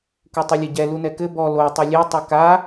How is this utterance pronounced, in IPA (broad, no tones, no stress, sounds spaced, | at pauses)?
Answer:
k u tˤ i lʲ ɐ ɟ ɛ l u n ɛ k ɘ b ɔ l o tˤ i lʲ e tˤ ɘ k a